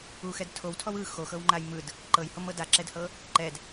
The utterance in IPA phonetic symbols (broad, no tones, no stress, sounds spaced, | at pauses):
u x ɛ d tʰ o w tʰ ɔ w ɯ x o x ɤ w ŋ͡ǃ a j m ɯ d | ǃ ɤ j h o m ɤ d a ǁ ɛ d h ɤ | ǃ ɛ d